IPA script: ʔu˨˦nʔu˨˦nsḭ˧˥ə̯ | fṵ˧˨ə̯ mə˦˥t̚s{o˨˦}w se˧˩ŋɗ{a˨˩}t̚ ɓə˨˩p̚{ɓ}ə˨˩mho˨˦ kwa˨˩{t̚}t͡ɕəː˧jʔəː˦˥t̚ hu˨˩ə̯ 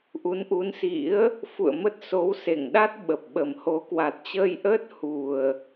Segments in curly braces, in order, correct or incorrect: correct, incorrect: a˦˥, correct, correct

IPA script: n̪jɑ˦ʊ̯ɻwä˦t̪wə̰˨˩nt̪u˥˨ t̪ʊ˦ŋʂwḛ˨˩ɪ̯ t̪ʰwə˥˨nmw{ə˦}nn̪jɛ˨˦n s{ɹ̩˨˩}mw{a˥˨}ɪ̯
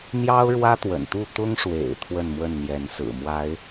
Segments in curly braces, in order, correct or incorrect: incorrect: ə˥˨, correct, incorrect: a˨˦

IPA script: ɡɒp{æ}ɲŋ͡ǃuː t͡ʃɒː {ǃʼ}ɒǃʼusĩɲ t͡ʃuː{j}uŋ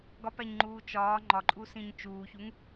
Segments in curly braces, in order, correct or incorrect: correct, incorrect: ŋ͡ǃ, incorrect: ç

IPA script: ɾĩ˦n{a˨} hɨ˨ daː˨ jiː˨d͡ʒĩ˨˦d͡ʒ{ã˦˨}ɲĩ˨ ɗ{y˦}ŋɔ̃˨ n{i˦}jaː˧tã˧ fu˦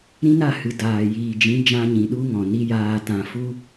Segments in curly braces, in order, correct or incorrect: incorrect: a˦˨, incorrect: ã˧, incorrect: u˦, correct

